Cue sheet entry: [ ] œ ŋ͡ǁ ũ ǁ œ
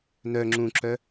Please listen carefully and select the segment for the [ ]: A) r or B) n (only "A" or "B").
B